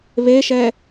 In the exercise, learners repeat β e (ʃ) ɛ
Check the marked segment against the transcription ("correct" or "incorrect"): correct